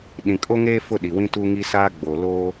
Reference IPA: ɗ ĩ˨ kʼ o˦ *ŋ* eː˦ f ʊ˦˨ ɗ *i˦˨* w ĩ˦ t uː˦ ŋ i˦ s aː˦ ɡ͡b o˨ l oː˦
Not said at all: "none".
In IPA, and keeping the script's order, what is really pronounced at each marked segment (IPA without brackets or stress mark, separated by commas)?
ŋ, i˨